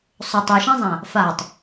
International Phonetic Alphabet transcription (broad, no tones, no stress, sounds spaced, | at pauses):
sˤ ʊ tˤ e ʃ ẽ zˤ ã | f a tˤ